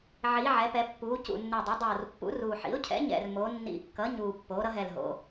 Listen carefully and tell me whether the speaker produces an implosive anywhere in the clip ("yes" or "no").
no